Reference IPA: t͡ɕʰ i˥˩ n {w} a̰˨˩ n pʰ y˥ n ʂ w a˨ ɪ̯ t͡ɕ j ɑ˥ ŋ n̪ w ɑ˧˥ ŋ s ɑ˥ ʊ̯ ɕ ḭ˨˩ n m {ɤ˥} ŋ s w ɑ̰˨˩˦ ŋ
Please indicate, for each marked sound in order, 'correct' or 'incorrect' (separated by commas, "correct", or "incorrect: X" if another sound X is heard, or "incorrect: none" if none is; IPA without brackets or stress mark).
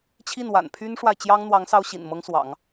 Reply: correct, correct